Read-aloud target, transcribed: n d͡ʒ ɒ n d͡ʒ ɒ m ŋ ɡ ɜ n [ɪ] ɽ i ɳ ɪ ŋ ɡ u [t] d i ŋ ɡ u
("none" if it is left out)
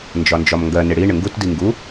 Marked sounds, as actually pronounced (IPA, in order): ɪ, t

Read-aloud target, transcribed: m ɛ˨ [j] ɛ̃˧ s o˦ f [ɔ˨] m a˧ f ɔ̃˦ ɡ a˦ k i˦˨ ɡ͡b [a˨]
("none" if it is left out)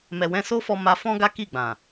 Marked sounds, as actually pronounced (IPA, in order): w, ɔ˧, ã˨

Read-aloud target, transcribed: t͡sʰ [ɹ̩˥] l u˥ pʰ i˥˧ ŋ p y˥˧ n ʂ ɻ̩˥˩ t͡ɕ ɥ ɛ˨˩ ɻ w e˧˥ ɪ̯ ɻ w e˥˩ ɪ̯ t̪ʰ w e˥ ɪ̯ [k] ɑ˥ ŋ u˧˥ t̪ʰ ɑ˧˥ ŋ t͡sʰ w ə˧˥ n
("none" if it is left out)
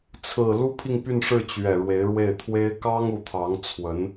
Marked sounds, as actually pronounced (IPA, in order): ɹ̩˨˩, k

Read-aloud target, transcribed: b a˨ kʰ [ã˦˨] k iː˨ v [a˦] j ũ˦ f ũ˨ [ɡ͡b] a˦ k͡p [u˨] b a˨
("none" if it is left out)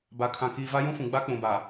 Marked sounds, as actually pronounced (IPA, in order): ã˨, a˦, ɡ͡b, ũ˨

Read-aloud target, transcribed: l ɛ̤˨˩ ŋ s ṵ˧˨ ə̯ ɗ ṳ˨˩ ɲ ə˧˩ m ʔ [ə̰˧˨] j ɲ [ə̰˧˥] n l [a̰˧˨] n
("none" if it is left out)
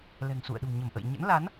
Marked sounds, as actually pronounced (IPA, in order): ə̰˧˨, ə̰˧˥, a˨˦

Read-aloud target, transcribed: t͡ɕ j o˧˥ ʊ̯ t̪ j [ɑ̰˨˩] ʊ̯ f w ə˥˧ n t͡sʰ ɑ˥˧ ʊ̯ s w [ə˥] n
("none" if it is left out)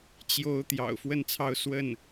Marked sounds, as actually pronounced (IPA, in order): ɑ̰˨˩, ə˥˩

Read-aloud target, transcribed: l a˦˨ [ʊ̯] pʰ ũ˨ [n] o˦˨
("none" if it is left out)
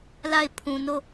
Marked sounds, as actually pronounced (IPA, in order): ɪ̯, n

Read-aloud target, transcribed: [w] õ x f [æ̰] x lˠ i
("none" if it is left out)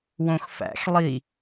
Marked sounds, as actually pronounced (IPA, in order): w, æ̰

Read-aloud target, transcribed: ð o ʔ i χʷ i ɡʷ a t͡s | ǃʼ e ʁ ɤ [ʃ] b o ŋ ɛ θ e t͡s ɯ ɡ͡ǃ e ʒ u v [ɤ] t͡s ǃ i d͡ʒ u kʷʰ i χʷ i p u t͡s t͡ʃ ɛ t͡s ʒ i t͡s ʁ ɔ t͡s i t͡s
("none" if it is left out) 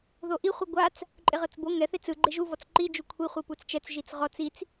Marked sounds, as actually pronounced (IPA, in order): t͡s, ɔ

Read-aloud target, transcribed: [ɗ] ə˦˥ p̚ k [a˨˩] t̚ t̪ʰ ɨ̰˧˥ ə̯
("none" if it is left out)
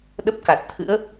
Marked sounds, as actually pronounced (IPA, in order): ɗ, a˨˩

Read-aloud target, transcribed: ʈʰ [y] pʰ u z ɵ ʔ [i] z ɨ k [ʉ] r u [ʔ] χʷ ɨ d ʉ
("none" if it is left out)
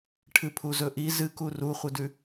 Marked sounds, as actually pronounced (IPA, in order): ɨ, i, u, none

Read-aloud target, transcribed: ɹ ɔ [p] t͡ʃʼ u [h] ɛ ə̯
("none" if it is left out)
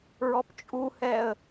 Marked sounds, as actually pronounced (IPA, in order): p, h

